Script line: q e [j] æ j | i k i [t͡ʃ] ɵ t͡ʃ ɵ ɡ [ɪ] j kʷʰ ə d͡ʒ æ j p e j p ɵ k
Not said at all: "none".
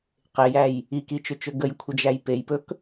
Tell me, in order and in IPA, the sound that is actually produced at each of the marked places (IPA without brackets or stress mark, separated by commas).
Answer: j, t͡ʃ, ə